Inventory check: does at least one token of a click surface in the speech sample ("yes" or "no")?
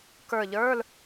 no